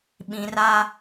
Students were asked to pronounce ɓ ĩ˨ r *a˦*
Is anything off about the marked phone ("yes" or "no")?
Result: no